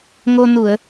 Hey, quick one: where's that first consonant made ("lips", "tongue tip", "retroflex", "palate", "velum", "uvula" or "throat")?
velum